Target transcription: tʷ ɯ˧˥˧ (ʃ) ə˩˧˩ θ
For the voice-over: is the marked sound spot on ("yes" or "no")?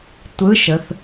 yes